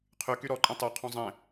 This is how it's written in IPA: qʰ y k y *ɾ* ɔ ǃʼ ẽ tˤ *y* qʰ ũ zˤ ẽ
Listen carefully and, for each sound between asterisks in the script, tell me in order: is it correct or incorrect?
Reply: correct, correct

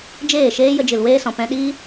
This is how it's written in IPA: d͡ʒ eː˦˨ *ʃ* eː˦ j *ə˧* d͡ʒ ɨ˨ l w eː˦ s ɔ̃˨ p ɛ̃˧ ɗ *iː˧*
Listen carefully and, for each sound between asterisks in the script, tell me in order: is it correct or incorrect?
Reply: correct, correct, incorrect

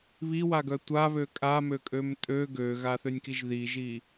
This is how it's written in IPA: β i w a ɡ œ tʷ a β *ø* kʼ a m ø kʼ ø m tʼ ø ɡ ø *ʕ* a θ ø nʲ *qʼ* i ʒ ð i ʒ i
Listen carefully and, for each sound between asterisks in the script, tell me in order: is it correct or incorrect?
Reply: correct, incorrect, incorrect

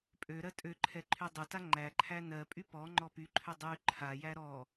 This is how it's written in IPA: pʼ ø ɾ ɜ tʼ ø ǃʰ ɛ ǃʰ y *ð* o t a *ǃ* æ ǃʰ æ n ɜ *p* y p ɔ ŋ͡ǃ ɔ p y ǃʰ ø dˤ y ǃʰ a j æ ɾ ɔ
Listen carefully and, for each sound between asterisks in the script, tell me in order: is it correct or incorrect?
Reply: incorrect, incorrect, incorrect

